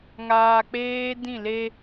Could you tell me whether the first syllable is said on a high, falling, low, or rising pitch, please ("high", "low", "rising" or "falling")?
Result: low